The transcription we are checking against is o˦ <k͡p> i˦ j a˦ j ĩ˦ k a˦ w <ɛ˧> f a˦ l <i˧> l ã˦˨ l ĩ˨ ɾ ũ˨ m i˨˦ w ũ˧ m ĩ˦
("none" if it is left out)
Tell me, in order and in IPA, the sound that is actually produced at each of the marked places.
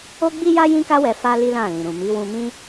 ɡ͡b, ɛ˧, i˦

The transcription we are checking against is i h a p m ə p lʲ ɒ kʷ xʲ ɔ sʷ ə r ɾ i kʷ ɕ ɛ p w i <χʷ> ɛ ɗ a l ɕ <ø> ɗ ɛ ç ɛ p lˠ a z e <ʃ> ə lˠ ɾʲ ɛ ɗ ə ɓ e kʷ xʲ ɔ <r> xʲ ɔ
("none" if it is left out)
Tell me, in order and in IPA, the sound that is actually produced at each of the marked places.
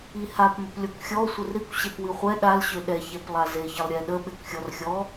χʷ, ø, ç, r

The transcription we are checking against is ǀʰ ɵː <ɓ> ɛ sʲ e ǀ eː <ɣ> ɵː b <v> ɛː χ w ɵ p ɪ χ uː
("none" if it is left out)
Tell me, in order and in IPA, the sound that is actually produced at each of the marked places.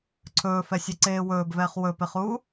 f, w, v

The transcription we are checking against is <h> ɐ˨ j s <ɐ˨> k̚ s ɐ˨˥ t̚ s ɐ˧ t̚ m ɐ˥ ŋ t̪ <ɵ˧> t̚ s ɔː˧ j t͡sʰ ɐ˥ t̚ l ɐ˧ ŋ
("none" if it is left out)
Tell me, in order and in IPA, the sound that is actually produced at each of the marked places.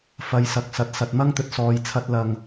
f, ɐ˨, ɵ˧

